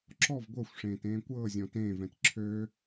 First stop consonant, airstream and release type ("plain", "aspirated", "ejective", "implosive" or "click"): click